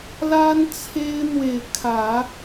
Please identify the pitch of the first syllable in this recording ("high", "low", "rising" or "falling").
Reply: high